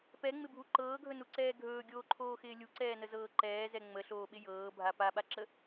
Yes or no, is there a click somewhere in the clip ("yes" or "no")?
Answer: yes